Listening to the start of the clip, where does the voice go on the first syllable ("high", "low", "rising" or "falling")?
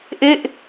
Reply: falling